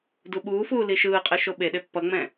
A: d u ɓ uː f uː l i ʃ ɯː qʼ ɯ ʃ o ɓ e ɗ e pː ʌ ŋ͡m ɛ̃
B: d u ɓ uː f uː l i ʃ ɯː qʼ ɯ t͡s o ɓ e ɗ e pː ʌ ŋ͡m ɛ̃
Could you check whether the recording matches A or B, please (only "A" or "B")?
A